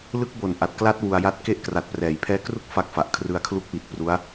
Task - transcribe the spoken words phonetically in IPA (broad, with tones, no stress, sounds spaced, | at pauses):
l ɯ˦˥ k̚ b o˨˩ n ʔ a˨˩ t̚ k l a˦˥ t̚ w u˧ a̯ j a˦˥ t̚ k e˥˩ ʔ k r a˨˩ t̚ p r ɛː˩˦ j pʰ ɛː˦˥ k r u˥˩ k̚ f a˦˥ k̚ f a˨˩ ʔ kʰ r ɯ˧ a̯ kʰ l u˦˥ k̚ w i˨˩ t̚ p r u˦˥ a̯